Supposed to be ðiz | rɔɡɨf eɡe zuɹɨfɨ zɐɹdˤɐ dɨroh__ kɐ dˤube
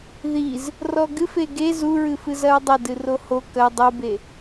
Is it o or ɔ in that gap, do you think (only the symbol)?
o